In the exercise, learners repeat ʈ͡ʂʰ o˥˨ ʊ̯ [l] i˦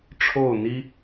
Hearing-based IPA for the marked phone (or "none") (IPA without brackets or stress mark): n̪